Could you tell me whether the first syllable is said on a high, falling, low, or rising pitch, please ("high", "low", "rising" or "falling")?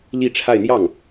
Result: falling